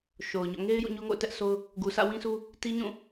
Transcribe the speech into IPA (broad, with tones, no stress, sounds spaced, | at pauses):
ʃ o˨ ʊ̯ ɲ ɔ̰˦˨ ŋ e˦ ɪ̯ j ṵ˦˨ ɲ o˦ ŋ o̰˦˨ ʊ̯ t ɛ˦ ʔ sʰ o˦ ʊ̯ | ɡ u˨ sʰ ä̰˦˨ w ĩ˦ s u˦ | t i˦ ɲ ũ˦˨